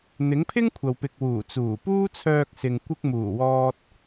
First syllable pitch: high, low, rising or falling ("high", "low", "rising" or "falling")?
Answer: rising